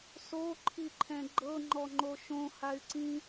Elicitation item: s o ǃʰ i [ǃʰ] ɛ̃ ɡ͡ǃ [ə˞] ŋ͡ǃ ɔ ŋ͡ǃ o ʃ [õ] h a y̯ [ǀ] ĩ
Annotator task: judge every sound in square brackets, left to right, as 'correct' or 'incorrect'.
correct, incorrect, correct, correct

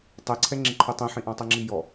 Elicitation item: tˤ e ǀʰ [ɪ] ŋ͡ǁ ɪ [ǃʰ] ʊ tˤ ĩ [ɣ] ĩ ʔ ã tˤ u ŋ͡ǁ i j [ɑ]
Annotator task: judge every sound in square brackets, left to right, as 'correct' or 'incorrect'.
incorrect, correct, incorrect, incorrect

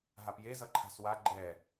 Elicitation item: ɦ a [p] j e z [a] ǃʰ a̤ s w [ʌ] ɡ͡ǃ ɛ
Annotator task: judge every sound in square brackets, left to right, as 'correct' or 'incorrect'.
correct, incorrect, incorrect

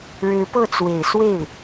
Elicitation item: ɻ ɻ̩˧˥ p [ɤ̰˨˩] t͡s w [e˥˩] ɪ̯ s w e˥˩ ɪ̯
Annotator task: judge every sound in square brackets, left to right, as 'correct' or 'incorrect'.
incorrect, incorrect

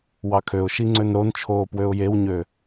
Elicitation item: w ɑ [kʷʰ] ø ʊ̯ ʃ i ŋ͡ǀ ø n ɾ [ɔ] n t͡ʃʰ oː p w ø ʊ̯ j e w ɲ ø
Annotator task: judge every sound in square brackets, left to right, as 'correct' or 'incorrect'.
incorrect, incorrect

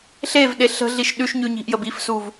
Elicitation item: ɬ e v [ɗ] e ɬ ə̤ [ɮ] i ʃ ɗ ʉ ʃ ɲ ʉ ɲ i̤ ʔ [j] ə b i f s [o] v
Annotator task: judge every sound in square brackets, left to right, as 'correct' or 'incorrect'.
correct, correct, correct, incorrect

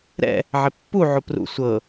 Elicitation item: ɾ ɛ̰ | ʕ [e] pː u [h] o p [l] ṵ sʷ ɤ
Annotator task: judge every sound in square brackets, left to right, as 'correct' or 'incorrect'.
correct, incorrect, incorrect

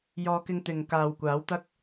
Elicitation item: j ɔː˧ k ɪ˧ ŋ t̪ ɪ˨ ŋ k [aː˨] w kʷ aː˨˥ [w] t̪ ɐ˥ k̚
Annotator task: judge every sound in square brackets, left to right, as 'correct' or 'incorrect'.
correct, correct

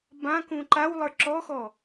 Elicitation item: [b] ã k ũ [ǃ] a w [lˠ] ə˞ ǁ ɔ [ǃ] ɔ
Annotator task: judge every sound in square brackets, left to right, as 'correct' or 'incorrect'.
correct, correct, correct, incorrect

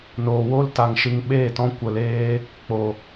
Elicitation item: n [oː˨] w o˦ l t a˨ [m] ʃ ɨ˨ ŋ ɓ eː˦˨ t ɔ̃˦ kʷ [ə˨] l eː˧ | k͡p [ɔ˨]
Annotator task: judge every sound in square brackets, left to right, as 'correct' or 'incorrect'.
correct, incorrect, correct, incorrect

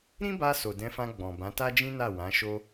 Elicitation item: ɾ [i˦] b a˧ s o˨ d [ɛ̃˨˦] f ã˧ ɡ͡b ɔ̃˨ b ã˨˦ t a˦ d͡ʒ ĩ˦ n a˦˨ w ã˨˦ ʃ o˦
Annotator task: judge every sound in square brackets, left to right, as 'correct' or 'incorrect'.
incorrect, correct

